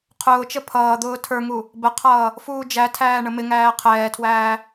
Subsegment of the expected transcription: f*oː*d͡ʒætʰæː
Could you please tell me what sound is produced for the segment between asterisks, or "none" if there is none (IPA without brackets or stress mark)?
uː